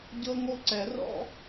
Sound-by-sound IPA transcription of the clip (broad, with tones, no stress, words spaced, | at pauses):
ɟɤ˥ŋo˥ǀɛ˨˩˦rɔ̰˥